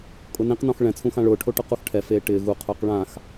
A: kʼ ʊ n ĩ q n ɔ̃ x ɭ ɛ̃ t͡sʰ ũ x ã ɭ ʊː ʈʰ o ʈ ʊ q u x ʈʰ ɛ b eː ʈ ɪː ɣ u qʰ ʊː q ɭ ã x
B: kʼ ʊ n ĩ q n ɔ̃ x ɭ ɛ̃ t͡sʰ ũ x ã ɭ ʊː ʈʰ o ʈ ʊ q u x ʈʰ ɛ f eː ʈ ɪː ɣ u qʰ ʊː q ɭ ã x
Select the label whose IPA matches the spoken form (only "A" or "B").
B